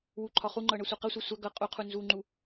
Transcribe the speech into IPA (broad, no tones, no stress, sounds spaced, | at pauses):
w u ǃʰ ɒ χ u ŋ͡ǃ ɤ ɳ ɤ sʷ ɤ q ʌ sʷ a sʷ a ɡ ɤ qʼ u qʰ u n z u ŋ͡ǃ u